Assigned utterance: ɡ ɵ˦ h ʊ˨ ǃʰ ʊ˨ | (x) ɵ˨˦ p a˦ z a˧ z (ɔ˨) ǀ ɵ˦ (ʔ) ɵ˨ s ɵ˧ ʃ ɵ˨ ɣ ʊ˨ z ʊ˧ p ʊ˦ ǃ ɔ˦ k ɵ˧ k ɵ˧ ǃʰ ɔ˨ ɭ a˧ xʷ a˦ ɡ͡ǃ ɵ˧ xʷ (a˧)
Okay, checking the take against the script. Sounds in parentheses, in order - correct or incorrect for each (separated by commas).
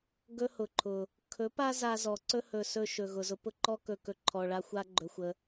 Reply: incorrect, correct, incorrect, incorrect